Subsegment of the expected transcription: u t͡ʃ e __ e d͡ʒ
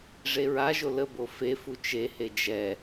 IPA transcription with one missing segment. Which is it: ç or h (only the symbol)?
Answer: h